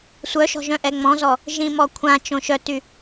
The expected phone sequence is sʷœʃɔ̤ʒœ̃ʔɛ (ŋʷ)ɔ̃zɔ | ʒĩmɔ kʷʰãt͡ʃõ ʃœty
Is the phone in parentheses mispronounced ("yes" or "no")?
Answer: yes